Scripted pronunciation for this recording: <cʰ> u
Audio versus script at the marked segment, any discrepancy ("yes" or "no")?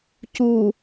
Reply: yes